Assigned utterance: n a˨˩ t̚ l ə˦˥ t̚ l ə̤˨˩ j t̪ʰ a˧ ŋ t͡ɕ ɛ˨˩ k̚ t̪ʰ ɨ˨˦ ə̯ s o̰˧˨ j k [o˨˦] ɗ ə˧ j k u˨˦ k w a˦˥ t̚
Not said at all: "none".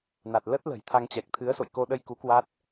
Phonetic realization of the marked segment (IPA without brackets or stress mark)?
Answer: o˧